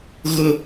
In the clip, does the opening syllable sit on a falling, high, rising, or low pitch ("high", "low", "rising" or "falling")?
high